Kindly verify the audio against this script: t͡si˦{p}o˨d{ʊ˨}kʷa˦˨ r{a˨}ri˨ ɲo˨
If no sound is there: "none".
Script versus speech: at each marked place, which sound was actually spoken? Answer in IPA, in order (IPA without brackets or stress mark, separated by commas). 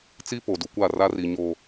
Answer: p, u˨, a˦